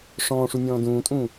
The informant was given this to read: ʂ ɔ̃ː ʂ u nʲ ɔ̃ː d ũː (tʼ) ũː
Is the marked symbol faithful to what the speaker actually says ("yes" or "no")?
yes